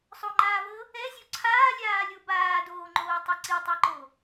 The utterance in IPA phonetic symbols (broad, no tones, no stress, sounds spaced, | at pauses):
sˤ o ŋ͡ǃ aː v ɤ | ɛ zʲ o ǀʰ aː lʲ aː lʲ o b aː d oː ŋ͡ǃ oː tˤ i ǀ i tˤ e ǃ o